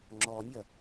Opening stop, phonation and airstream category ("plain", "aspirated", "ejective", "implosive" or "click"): click